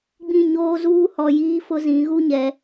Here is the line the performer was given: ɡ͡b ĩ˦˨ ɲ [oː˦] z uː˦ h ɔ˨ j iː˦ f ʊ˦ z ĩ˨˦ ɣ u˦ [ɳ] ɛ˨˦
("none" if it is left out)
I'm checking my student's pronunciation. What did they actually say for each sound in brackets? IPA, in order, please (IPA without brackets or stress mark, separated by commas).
oː˦, ɲ